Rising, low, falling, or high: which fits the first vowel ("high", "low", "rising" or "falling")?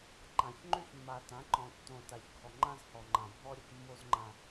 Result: low